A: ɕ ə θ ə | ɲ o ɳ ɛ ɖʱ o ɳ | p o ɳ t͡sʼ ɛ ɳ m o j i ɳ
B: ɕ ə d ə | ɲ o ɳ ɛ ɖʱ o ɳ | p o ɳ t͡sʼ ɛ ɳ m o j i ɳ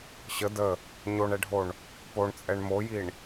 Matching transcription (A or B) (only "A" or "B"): B